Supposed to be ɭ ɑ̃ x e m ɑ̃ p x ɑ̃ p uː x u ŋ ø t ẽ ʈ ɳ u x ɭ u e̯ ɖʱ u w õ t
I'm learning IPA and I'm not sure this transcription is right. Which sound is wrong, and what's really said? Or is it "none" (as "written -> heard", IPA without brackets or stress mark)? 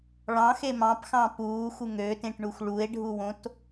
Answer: none